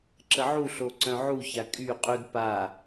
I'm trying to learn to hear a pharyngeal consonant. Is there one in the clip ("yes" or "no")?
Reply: yes